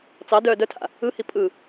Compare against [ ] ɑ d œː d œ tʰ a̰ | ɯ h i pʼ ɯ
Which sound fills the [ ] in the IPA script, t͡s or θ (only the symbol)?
t͡s